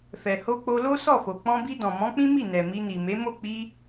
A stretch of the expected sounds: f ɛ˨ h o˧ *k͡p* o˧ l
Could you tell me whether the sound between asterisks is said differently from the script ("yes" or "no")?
no